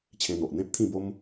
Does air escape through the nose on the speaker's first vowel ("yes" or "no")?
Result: yes